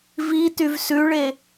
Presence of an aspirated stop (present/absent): absent